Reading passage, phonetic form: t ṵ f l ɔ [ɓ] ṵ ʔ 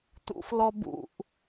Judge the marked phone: incorrect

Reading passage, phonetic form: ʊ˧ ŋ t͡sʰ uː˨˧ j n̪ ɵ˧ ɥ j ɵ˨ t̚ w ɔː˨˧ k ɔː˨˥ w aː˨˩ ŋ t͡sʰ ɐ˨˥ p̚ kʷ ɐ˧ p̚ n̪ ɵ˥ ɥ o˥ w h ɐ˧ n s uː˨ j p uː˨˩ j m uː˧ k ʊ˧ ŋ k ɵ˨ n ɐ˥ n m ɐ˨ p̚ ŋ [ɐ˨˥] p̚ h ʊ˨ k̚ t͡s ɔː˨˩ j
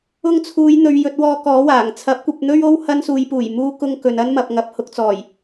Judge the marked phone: incorrect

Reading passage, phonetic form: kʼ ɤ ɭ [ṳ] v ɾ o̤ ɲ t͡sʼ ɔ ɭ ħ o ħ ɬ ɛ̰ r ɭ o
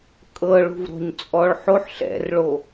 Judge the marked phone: correct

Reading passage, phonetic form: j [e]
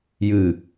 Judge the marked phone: incorrect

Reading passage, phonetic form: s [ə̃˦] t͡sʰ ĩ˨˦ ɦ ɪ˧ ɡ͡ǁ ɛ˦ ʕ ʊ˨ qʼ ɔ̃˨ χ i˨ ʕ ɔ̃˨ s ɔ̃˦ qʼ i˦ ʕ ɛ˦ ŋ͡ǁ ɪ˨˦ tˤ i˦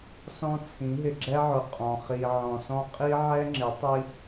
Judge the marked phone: incorrect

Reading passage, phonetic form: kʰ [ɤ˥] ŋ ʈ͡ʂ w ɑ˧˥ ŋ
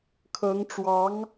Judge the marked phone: incorrect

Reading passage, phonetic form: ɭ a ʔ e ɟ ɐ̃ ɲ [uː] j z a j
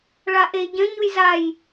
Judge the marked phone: incorrect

